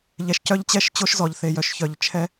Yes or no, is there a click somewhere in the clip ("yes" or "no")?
no